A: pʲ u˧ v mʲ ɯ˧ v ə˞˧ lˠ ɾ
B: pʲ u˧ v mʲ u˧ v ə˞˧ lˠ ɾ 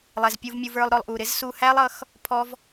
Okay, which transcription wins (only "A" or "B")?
B